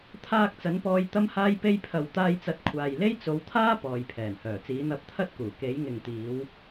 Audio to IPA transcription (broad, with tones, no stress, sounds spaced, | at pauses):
t̪ʰ aː˧ k̚ t͡s ɐ˨˥ n p ɔː˧ j t̪ ɐ˥ m h aː˥ j p e˥ j pʰ ɐ˨ w t̪ aː˧ j t͡s ɐ˨˥ t̚ kʷʰ aː˨ j l e˥ j t͡s o˨˧ w t̪ʰ aː˥ p ɔː˨ j pʰ ɛː˨˩ n h œː˨˩ t͡s iː˨˥ n̪ ɐ˧ p̚ t̪ʰ ɐ˥ t̚ k uː˨˩ k e˨˥ j ŋ ɪ˨ ŋ t̪ iː˨˧ w